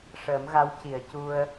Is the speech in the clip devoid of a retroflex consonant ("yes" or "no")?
no